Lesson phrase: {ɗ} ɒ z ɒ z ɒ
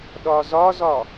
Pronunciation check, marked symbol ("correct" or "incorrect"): correct